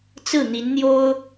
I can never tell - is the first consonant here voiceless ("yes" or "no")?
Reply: yes